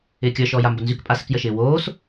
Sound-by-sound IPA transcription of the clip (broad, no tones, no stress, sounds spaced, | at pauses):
ɪː kʲ ə˞ ʃ ɔː j a m b ə n z y k pʼ a s ɪ k j ə ʃ ɪː w oː s